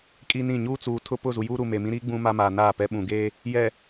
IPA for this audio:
kʼ i˦ n ĩ˦˨ ɲ uː˦ t͡s uː˨ tʰ ʊ˦ p ʊ˦˨ z u˨ j uː˦ ɾ u˨ m eː˨ m ĩ˦ ɾ iː˦ ɡ͡b ũ˦ m a˦ m a˨ n aː˦˨ p ɛ˦ ɓ ũ˨ ɡ eː˦ | j ɛ˨

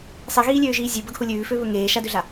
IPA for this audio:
sˤ i ɣ iː lʲ øː ʒ iː zʲ ʉ b ə ɡ h u lʲ ʉː f ø β ɵ ŋ eː ʃ a d ø ɮ a

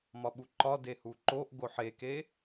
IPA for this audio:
m ɒ ɓ u ǃ ɒ d e h u ǃ o ʔ ɡ o ħ e k e

